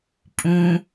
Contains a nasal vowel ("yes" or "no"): yes